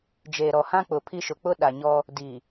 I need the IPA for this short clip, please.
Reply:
d͡ʒeː˨ɾɔ˨hã˦k͡pʊ˨ pʰi˦ʃʊ˨ k͡pʊ˦ ɗa˨ɲɔ˦ | di˨

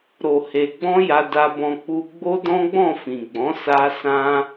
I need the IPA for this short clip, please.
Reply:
ɾo˨he˨ɡ͡bɔ̃˧ ja˧da˧bɔ̃˧ k͡pu˧ ɡ͡bo˦dɔ̃˦ɡ͡bɔ̃˦˨ fĩ˨ɡ͡bɔ̃˨˦ sa˧ sã˧

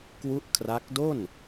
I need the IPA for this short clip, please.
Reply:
kwu˦˥ʔ kʰra˦˥k̚ do˥˩n

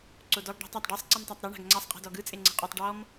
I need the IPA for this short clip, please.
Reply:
ǀodɔɡ ɖa̤tˤatˤ ɖesˤ ǀimtˤatˤɾɤ ɳa̤ɡŋ͡ǀasˤ qʼi̤dɔɡɯ t͡sʼeŋ͡ǀɛ̤qʼutˤ ɖɔm

